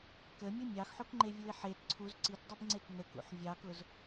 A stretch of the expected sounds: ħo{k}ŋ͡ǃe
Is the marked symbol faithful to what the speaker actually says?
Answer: yes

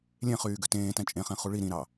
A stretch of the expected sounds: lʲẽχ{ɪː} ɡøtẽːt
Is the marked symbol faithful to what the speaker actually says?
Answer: no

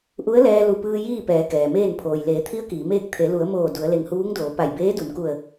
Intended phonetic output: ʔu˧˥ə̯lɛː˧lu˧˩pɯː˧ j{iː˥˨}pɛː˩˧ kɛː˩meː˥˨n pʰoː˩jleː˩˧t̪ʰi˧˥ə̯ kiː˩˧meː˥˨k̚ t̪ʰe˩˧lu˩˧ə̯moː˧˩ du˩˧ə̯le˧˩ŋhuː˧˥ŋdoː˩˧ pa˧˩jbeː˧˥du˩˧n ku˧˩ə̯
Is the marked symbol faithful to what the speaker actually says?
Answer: yes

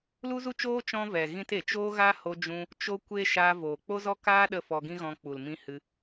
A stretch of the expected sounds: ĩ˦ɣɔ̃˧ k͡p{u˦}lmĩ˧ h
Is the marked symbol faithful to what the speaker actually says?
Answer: no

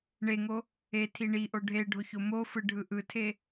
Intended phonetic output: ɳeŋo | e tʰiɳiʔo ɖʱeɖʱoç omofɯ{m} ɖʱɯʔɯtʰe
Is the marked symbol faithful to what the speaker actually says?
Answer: no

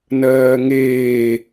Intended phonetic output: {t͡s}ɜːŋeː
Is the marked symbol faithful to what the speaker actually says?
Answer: no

